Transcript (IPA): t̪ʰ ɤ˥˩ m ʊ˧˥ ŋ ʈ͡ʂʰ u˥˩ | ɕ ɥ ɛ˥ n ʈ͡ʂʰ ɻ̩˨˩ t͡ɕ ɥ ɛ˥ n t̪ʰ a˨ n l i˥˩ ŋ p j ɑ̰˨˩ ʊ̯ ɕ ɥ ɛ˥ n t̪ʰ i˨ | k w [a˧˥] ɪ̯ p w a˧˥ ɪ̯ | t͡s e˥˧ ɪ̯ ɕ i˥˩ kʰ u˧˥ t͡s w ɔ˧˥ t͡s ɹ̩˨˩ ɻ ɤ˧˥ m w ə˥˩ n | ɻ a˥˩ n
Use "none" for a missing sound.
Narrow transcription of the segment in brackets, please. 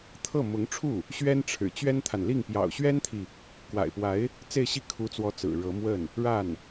a̰˨˩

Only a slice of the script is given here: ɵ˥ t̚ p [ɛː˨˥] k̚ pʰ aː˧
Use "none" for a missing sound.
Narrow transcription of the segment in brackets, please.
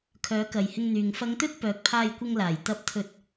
œː˨˥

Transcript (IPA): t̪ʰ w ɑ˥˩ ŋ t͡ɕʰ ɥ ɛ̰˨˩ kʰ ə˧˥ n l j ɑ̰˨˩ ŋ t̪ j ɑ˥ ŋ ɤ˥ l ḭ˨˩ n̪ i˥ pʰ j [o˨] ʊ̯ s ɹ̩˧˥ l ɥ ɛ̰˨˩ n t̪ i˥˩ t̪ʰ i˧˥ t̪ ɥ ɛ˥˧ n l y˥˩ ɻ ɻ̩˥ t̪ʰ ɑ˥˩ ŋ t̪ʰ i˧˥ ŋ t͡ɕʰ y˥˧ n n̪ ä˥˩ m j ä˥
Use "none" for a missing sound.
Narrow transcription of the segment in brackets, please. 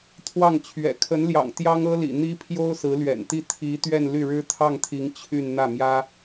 o˥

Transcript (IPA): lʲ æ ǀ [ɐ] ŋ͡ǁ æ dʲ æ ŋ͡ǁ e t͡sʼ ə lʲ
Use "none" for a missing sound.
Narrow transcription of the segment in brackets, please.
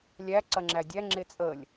ɐ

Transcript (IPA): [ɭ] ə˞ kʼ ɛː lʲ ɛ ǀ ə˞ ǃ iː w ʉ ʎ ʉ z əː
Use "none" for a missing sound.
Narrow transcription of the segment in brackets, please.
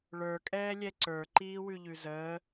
ɭ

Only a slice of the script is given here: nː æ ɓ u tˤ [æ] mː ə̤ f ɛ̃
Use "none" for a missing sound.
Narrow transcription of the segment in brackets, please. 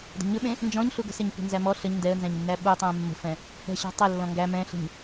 æ̃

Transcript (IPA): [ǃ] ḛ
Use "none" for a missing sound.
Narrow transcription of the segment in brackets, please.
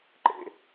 ǃ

